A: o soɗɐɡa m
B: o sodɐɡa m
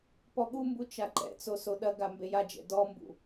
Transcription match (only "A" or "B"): A